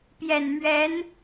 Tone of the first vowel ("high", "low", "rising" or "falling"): low